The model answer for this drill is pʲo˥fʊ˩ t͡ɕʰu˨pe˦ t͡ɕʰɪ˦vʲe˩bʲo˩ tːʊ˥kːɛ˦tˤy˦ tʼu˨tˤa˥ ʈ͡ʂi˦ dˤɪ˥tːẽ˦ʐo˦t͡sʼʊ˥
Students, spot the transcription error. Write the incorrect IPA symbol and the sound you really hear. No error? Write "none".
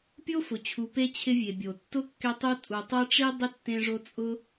y˦ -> u˦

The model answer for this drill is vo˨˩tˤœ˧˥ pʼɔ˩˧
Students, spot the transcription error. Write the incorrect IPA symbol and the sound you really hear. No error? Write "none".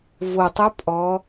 none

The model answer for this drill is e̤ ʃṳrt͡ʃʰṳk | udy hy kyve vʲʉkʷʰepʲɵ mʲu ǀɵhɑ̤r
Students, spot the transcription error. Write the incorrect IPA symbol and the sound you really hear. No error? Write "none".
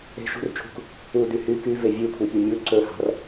none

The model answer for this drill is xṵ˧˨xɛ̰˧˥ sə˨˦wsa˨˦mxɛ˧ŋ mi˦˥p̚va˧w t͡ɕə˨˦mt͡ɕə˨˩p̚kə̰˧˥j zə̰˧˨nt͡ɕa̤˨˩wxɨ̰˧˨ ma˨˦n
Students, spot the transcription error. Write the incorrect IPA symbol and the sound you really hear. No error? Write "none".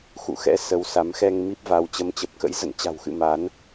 none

